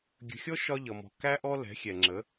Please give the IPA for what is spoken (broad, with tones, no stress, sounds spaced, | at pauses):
ɡʲ ə̤˨ xʲ ɔ˦ ʃ ɒ˦ ʎ ʌ˨ m ɔ̤˨ k æ˦ ʔ ɔ˦ l ɛ̤˨˦ xʲ ɛ˨ ŋ͡ǁ ə˨˦